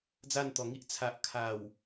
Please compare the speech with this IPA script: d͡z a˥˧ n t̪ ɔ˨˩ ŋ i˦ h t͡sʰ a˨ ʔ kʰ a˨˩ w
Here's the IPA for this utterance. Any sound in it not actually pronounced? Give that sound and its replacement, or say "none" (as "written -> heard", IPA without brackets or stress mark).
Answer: h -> ʔ